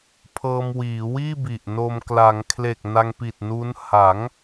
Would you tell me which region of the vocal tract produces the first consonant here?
lips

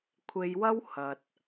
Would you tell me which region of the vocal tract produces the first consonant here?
velum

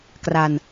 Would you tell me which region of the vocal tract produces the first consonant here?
velum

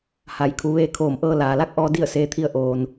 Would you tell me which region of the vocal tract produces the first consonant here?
throat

